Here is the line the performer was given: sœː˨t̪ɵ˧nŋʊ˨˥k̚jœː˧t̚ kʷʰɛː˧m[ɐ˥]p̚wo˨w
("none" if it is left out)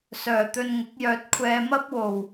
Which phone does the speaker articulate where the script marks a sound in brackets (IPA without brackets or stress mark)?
ɐ˥